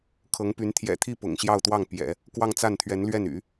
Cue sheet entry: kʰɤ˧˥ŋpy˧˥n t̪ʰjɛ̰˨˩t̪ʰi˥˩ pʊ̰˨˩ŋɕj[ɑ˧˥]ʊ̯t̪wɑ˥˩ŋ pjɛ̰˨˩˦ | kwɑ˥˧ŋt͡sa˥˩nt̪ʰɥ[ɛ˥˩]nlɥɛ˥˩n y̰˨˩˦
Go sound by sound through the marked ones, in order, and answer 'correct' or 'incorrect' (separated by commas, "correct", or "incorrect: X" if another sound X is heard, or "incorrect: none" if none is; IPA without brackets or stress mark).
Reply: incorrect: ɑ˥˧, incorrect: ɛ˧˥